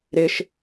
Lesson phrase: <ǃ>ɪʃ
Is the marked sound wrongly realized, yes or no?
yes